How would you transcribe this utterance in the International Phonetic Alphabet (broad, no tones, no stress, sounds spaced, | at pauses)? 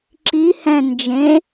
ǁ i h ɛ̃ n d͡ʒ ẽ